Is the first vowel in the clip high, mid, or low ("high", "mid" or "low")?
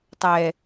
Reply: mid